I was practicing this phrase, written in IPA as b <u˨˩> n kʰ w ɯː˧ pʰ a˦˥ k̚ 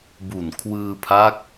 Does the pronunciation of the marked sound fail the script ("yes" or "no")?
no